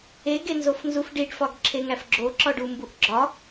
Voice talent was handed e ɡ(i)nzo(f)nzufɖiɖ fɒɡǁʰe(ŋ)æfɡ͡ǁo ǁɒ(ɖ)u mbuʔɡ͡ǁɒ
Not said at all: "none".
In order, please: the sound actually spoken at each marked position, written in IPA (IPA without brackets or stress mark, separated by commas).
e, f, ŋ, ɖ